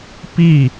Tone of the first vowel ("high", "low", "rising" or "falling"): falling